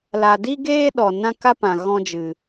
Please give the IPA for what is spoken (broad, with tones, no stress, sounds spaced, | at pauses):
l a˧ d i˦ ɡ eː˦ ɗ ɔ˨ n ã˦ k a˦ p ã˨ ɣ ɔ̃˦ d͡ʒ ɨ˨